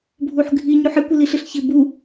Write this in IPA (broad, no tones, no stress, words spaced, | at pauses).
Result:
bʱuħɡʱi ɲuħɪ kʷɪliɬɪɬçɪ bu